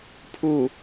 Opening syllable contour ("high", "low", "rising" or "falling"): low